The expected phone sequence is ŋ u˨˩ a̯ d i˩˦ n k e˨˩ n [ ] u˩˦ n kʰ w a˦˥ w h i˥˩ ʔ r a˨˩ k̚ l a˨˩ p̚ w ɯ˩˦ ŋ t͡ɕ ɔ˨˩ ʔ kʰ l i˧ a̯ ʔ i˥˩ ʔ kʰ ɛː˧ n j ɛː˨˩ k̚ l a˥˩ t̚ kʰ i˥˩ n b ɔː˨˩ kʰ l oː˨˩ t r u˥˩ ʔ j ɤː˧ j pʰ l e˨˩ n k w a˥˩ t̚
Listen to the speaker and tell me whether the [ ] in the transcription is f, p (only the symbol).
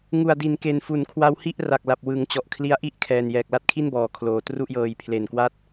f